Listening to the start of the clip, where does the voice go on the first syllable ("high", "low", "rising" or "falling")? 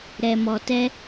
low